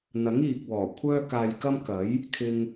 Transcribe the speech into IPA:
n̪ ɐ˨˥ ŋ iː˨ k̚ w ɔː˨˩ kʷʰ œː˥ k aː˧ j k ɐ˥ m k ɐ˨˥ j | kʰ ɪ˧ ŋ

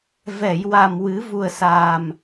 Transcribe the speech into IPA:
v ɛ˨˩˨ j w a˨˩ m w ɨ˨˩˦ v u˨˩ ə̯ s aː˨˩ m

